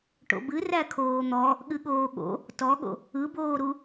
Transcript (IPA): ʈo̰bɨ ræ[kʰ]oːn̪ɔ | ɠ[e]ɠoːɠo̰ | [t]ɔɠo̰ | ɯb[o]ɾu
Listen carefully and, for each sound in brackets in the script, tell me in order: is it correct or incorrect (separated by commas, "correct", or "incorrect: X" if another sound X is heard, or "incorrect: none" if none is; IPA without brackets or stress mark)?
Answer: correct, incorrect: ɨ, correct, incorrect: oː